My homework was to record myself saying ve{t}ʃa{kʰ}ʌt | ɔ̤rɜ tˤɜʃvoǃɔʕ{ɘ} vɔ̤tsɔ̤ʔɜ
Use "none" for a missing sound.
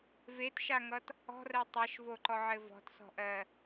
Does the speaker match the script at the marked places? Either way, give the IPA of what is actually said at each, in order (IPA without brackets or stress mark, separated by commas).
t, ŋ, ɘ